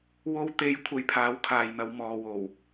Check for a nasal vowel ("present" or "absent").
absent